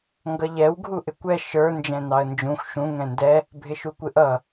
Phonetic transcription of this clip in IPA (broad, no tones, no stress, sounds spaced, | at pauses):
ŋ ɡ ʌ ʎ ɛ w ɡʱ u ʔ ɪ kʷ ɛ ʃ ə˞ n d͡ʒ ɛ̃ n ɑ ə̯ n d͡ʒ ũ xʷ ʃ ũ ŋ ɛ̃ n d ɛ | bʱ ɪ ʃ u kʷ ɪ ʔ ʌ